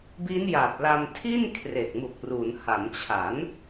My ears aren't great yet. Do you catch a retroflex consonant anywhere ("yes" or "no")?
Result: no